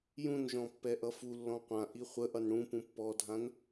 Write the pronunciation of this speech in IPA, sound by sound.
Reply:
j ũ n ʒ ɔ̃ pː ɛ ʔ ʌ f u lː ɔ̃ qʷ ã ʔ i χʷ ə ʔ ʌ n ɽ ũ p ũ pː ɔ dʱ ã n

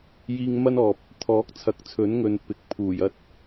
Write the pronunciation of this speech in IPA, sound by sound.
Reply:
j iː˧ ŋ m ɐ˥ n ɔː˨ p̚ | t̪ʰ ɔː˨˥ k̚ t͡sʰ ɐ˨ k̚ t͡sʰ ɵ˨˥ n ŋ ɵ˨ n p ɪ˨˥ k̚ pʰ uː˨˩ j ɐ˧ t̚

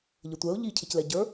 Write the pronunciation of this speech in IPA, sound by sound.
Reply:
ʎ ə tʷ ɛ ʊ̯ ʎ i cʰ ɪ c l ɛ ɟ ə˞

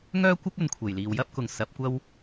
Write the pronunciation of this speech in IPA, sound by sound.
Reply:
ŋ œː˥ kʷ ɪ˥ k̚ ɵ˨ n kʷʰ e˨˩ j l iː˨ w j ɐ˥ p̚ k ʊ˨ ŋ s ɐ˨˥ p̚ kʷ ɐ˥ w

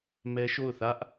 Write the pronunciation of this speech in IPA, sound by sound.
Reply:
m ɛ˦ ʃ o˦˨ ʊ̯ θ ä˦ ʔ

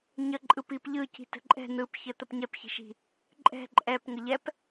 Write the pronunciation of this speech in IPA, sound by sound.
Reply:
ɲ ə ǃʼ ɯ p i p ʎ ɯ c i̤ t ə̤ ǃʼ ɛ̤ n̪ ɯ p ç ə t̪ ə p ɲ ɛ p ç i̤ ʃ i̤ | ǃʼ ɛ̤ ǃʼ ɛ p ŋ ə ʎ ɛ p

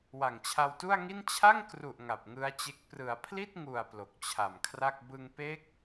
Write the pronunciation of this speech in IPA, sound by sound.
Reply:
w a˨˩ ŋ t͡ɕʰ a˧ w t u˥˩ a̯ ŋ i˥˩ n t͡ɕʰ a˥˩ ŋ k r u˨˩ ʔ ŋ a˨˩ p̚ ŋ ɯ˦˥ a̯ t͡ɕ e˦˥ k̚ p r ɯ˩˦ a̯ pʰ l i˥˩ t̚ ŋ u˨˩ a̯ p l o˨˩ k̚ t͡ɕʰ a˨˩ m kʰ r a˥˩ k̚ b ɯ˧ ŋ p e˦˥ k̚

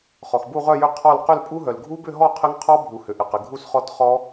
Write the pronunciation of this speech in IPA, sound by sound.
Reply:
χ ɔ˩ x b u˥˨ ʁ œ˥˨ j ʏ˥˨ qʰ ɔ˥˨ l q ʏ˥˨ l pʼ u˦˥ ɦ œ˩ l ɡʱ u˦˥ b ʏ˥˨ ɦ ɔ˥˨ qʰ ɪ˦˥ ŋ qʰ ɔ˦˥ bʱ u˩ h ʏ˩ ʔ ɪ˩ q ɪ˩ ɡʱ u˥˨ s χ ɔ˦˥ t χ ɔ˦˥

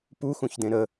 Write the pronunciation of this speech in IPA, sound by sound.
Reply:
p u x ũ ç d ẽ ɾ ə

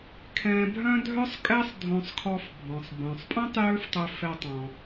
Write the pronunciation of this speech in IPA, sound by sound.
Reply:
kʰ ɛ̃˧ bʱ œ̃˥ dʱ œ˥ sˤ kʼ ɛ˥ sˤ dʱ õ˧ sˤ kʰ ɔ˧ f bʱ ɔ̃˩ sˤ b œ̃˩ sˤ pʼ œ̃˥ tˤ j ø˥ f tˤ ø˧ f ɛ˧ tˤ ɔ̃˩

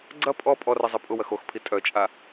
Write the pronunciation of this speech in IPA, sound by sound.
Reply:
ɡ͡ǀ ɐ pʼ ɔ pʼ ɔ r ɐ zˤ ɛ pʼ ʊ w ɐ x o x pʰ i tʼ œ t͡ʃʼ a

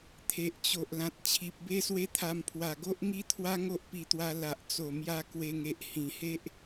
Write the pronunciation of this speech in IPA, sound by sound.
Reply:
t̪ʰ e˨ ʔ t͡ɕ o˨ ʔ l ã˨ t̚ t͡ɕʰ i˨ p̚ b e˦ s w e˦ t̪ʰ a˧ m pʰ w a˨˩ ɡ o˦ ʔ ŋ i˦ t̪ʰ w a˦ ŋ o˦ ʔ p i˧ t̪ w a˧ l a˨ ʔ t͡s o˨˩ m j a˧ k w e˧ ŋ e˨ ʔ h ĩ˨˩ h e˦ ʔ

